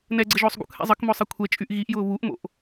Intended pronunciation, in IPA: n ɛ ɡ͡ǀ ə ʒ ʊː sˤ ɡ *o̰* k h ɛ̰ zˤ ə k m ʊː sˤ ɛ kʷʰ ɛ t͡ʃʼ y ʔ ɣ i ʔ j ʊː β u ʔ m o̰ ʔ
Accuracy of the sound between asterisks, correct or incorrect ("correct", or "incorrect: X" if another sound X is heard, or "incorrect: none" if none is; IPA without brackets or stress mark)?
incorrect: ṵ